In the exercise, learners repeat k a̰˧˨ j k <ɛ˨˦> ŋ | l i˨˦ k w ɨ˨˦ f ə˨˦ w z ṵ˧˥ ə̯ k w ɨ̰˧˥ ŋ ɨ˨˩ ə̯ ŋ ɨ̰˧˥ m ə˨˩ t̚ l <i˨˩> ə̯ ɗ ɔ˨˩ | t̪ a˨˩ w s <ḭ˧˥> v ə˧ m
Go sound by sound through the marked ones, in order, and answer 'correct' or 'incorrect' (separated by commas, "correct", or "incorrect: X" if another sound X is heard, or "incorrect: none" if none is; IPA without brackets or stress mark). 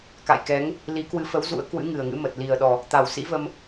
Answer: correct, correct, correct